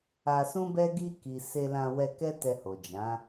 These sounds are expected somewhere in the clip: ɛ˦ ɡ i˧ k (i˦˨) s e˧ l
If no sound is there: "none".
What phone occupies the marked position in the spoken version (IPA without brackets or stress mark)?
i˨